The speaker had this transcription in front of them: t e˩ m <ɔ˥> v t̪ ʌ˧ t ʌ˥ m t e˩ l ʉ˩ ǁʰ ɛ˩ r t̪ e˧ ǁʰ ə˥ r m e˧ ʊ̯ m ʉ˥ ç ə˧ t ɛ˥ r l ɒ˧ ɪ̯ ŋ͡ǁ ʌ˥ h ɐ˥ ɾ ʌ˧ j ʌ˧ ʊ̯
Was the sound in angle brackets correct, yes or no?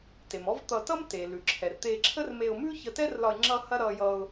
yes